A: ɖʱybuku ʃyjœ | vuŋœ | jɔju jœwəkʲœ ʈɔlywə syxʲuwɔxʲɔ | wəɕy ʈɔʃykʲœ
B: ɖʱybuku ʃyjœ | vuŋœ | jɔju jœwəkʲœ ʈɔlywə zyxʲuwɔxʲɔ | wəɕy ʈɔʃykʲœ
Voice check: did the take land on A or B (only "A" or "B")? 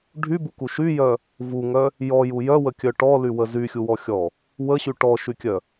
B